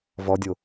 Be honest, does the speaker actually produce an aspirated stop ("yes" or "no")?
no